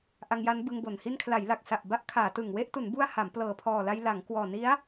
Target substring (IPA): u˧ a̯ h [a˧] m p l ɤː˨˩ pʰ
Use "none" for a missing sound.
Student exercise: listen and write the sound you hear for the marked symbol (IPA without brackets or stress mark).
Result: a˩˦